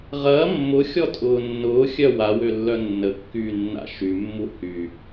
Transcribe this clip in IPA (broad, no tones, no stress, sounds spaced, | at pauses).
ʁ ɐː mː ʊ xʲ ɔ tʼ ʊː nː ʊː xʲ œ w a w ø lː œ nː ə kː yː nː a̰ ʃ y mː u h y